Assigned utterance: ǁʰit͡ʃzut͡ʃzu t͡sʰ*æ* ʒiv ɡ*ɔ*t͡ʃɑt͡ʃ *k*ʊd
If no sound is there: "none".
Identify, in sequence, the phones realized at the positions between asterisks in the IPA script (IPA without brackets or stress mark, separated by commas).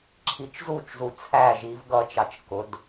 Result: æ, ʌ, k